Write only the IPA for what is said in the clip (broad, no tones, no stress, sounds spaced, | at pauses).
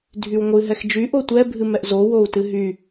dʱ y w ŋʷ ɨ ɦ ɛ x d͡ʒ y ʔ o tʷ ɛ bʱ ɨ m ɛ ʔ z o w o u̯ t ɨ ɦ y